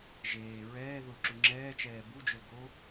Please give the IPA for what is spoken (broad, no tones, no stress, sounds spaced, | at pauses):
ʒ eː ɹ ɛː ð ʊ ǁ u ŋ͡ǁ ɛː t͡ʃ ɛː b u d͡ʒ ʊ l ɡ o